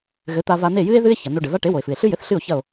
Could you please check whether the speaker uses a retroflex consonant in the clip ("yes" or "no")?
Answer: yes